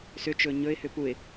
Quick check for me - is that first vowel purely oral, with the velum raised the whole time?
yes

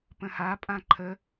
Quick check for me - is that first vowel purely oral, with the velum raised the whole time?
no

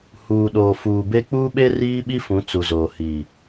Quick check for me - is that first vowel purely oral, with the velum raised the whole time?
yes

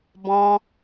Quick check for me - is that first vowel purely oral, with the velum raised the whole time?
no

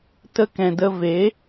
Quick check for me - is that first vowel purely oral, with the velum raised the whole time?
yes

